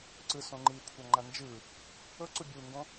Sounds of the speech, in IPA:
ǀ ɯ s õ ŋ͡ǃ i kʷʰ a ŋ͡ǃ a n d͡ʒ ɯ | ɤ ǀ u bʲ u ŋ ɡ õ

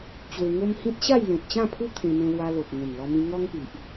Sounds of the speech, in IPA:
t͡ɕ w e˧ ŋ o˦ m h ĩ˦ t̚ ɕ a˥˧ j l ẽ˨ t̚ t͡ɕ ã˥˧ pʰ u˦ t̪ʰ ẽ˧ m ẽ˧ l w a˧ l o˨ p̚ ŋ ẽ˨˩ n l ɔ˧ m ĩ˧ ŋ ɔ˦ ŋ p i˨ ʔ

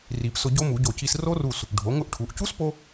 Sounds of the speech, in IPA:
r i˨˩˦ p s ʊ˧ ɟ o˦˥ m u˨˩˦ ɟ o˧˩ c i˧ s r o˦˥ r u˧˩ s | ɖʱ o˩˥ ŋ ʊ˦˥ ʔ ʈʰ u˩˥ ʔ c u˦˥ s p o˧

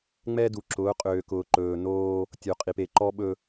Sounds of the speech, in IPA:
ŋ͡m ɛ˦ d u˨ ǁ ʊː˨˦ qʼ øː˨ k ʊː˨ ǃ ɵː˨ n oː˦ | tʲ o˨ qʼ i˨ p e˨ ǃ ɔ˦ ɓ ɵ˦

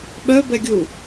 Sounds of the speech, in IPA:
ɓ œ b ɛ ɡʲ u

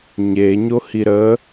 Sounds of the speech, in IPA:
ɲ e ɲ o h i ɾ ə

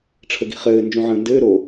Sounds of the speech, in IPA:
ʈ͡ʂʰ ə ɡ i̤ χ ɘː n d͡ʒ ũ ʕ ə̃ː n d ɘː ɾ o

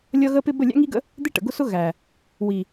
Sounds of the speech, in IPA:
lʲ ʌ˦ ɣ ə˦ p ɪ˦ b ə˦˨ lʲ æ̰˦ ŋ i˦ ɡ ə̰˦ | d̪ ɪ˦ ʈ ə̰˨ ɡ ʊ˦ s ʊ˦ ɣ æ˨ | w i˨

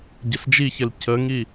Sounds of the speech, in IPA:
ɟ ɘ s d͡ʒ i ç ɘ l c ə ŋ i

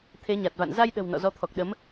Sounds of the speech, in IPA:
t̪ʰ e˨˦ ɲ a˨˩ t̚ v a̰˧˨ n z a˧ j ɗ ə̤˨˩ w n ɔ̰˧˨ z ɔ˨˦ t̪ʰ ɔ˨˩ k̚ ɗ ə˨˦ m

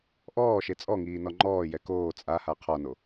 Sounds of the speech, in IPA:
ʔ ɔː ʃ e t͡sʼ ɔ ŋ iː n ɔ ŋ͡ǃ ɔː j ɛ k oː t͡sʼ a h a qʰ ɔ n o

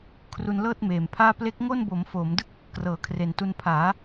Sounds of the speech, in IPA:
kʰ r u˧ n l ɤː˥˩ t̚ m eː˨˩ m pʰ aː˥˩ p l e˦˥ k̚ ŋ o˥˩ n b o˩˦ m f oː˩˦ m d ɯ˥˩ k̚ | k r ɤː˩˦ kʰ r e˨˩ n t u˧ n pʰ aː˩˦

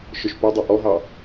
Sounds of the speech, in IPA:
ʃ œ ʃ p o dˤ ɑ ʔ ɔ ɦ ɑ

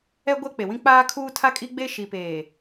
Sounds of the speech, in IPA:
ɛ˦ ɡʷ ɛ˦ k͡p e˨ w ĩ˦ k͡p aː˦ kʰ uː˦ tʰ a˦ kʼ i˦ ɡ͡b e˦ ʃ i˨ p eː˨

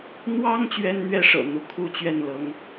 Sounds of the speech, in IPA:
n̪ w ɑ˥ ŋ t͡ɕ ɥ ɛ˥ n n̪ ɥ ɛ˥ ʂ ɤ̰˨˩ n̪ u˧˥ kʰ u˥˧ t͡ɕ ɥ ɛ˥˩ n l ɤ˧˥ ŋ

